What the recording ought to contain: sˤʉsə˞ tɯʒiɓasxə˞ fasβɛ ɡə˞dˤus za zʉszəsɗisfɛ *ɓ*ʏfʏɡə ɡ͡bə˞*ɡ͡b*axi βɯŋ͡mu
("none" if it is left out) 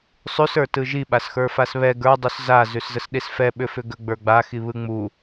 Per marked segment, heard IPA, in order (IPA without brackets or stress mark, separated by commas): ɓ, ɡ͡b